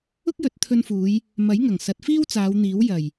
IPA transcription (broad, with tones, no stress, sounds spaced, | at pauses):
ʊ˥ k̚ j ɵ˨˥ t̚ t̪ʰ ɵ˧ n f uː˨˧ j | m ɐ˨˥ j ŋ ɐ˨˩ ŋ s ɐ˨˥ t̚ f iː˥ w t͡s aː˨˧ w n̪ iː˨˥ w j ɐ˨˩ j